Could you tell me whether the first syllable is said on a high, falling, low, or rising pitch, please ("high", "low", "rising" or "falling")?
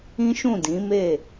high